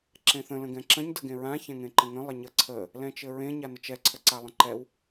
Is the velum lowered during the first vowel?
yes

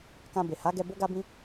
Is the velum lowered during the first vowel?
yes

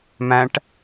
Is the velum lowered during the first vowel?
yes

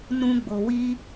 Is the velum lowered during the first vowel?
yes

